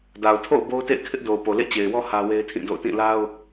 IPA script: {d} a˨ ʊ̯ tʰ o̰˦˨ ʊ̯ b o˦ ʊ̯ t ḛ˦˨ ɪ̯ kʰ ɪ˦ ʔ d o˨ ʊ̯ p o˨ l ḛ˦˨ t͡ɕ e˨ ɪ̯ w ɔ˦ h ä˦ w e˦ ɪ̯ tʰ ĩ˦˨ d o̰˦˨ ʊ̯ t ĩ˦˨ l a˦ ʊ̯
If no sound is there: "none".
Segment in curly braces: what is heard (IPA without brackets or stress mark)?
d